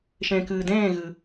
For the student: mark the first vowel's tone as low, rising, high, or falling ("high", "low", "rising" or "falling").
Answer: low